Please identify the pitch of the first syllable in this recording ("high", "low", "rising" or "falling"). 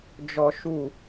high